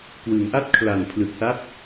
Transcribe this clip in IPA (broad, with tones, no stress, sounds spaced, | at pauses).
k w ɯ˩˦ ŋ ʔ a˥˩ t̚ kʰ l a˨˩ n pʰ l ɯ˨˩ k̚ s a˦˥ t̚